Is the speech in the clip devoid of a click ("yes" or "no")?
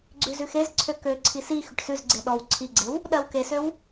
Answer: no